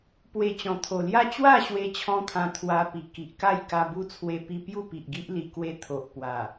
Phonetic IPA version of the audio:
p w e˨˩ t͡ɕ ɔ̃˨˩ t̪ʰ o˨˩ l j a˥˧ t͡ɕ w a˥˧ ɕ w e˦ t͡ɕʰ ɔ̃˦ t̪ʰ ã˧ t̪ʰ w a˧ p i˨˩ k i˨ ʔ k a˥˧ j k a˧ b u˦ t͡sʰ w e˧ p i˧ p j u˥˧ p i˨ ʔ ɡ i˦ ʔ l i˧ k w e˦ t̪ʰ o˨ ʔ p w a˨˩

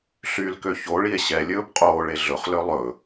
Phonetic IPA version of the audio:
ɬ y l k ø ç o ɭ i e̯ ɕ ɛ lʲ ɵː b qʼ oː ɭ e ɮ ɵ χ l ø lˠ ɵ

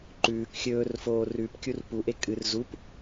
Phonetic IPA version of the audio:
ǃ ʉː k xʲ ɵː r f oː r ʉ p kʲ u r p u ʔ e kʼ ɨ r z u p

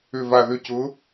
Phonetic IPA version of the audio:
ʏ˧˩ v a˧˩ ð ʏ˥˨ c ʊ˨˥

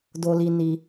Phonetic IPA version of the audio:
d o˦ l i˦ n i˦

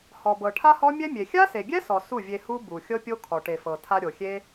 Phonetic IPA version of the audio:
h ɔ˨ b ɤ˨ ʈʰ a˦ h ɔ˦ mʲ ɛ˦ mʲ e˨ xʲ a˦ s e˨ ɡʲ ɛ˦ s ɔ˨ s u˦˨ vʲ e˧ h u˦ b u˨ xʲ ɤ˦ pʲ o˦ kʰ ɔ˨ ʈ e˨ f ɤ˨ tʰ a˧ ɾʲ o˨ xʲ e˦

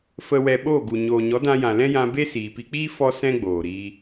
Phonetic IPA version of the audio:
f ə˨ w ɛ˨ ɓ oː˦˨ ɡ u˨ ɲ oː˨ ɲ ɔ˨˦ d ã˧ j ã˨ l ɛ̃˦ j ã˧ b e˦ s iː˨ p i˧ k͡p iː˦ f ɔ˦ s ɛ̃˦ ɡ͡b oː˨ ɾ iː˧

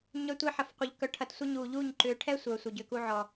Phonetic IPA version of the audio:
ɲ œ˧ tʷ e˦ ħ ɐ˨ f qʷ œ˨ ʎ k œ˧ ʈʰ ɐ˧ t sʷ ɐ˦ ɲ uː˨ ʎ uː˦˨ ɲ ǃ ʏː˨ ʈʰ ɛ˦ sʷ œː˨ sʷ œ˨ ɟ ʏː˧ k uː˧ ʕ ɔ˨

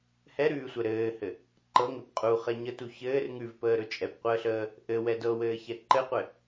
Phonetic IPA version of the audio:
h ɛ ɾ ʉː sʷ ɛ ɾ ɘː h ɘ | ǃ ɤ ŋ ɘ p qʼ u χ ɛ ɲ ə t u ç ɘː r ŋ ʉ v p əː ɾ ɵ t͡ʃʼ ɛ p qʷ əː ɬ əː | ʔ ɘ w ɛ d ɤ w ɘː ç ɛ ǃ ɘ qʷ ɘ

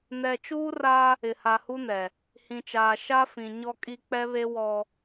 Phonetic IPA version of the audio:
n ɛ˨ t͡ʃ uː˦ r a˦ | ɪ˨ h a˨ h u˦ n ɛ˨ | h ĩ˨ t͡ʃ aː˨ ʃ a˦ f ĩ˨ ɲ ɔ˨ kʼ i˨ k͡p ɛ˦ β e˦ w ɔ˦

